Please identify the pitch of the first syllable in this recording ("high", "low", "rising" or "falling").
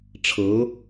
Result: rising